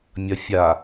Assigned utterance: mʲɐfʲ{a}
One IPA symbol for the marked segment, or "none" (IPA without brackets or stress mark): a